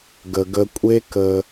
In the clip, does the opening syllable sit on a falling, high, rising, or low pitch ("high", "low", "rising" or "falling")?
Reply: low